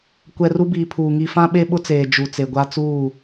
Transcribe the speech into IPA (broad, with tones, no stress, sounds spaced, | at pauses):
kʷ ɛ˨ r u˦ b iː˨ pʰ uː˨ ŋ i˨ f ã˦ ɓ e˦ ɓ ʊ˦ t͡s eː˨ d͡ʒ u˨ t͡s e˨ ɡʷ a˦ t͡s uː˦˨